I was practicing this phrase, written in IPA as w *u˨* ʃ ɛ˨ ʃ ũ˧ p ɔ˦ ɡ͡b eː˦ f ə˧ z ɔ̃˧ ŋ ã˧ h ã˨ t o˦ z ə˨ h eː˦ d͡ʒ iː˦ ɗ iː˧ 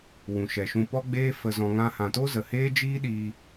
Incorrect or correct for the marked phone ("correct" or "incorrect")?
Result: incorrect